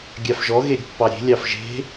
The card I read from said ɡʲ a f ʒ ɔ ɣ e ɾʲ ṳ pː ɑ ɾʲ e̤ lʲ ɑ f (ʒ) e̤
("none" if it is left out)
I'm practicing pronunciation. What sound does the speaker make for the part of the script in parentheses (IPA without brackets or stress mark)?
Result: ʒ